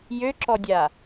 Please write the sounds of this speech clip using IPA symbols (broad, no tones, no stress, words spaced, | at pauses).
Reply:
jøǁɔdʲa